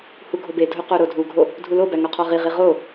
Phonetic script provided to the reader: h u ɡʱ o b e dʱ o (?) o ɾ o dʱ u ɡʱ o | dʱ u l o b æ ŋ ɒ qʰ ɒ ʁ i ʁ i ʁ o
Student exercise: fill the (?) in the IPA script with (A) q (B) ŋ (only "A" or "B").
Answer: A